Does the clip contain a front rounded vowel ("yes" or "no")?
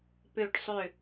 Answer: yes